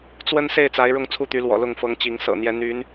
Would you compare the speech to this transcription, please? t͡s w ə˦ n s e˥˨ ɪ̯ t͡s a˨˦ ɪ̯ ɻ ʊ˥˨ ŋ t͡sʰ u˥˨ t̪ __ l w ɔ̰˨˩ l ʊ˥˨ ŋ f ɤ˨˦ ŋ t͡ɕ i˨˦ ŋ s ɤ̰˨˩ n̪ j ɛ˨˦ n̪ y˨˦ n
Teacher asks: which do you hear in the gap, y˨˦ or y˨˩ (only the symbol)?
y˨˦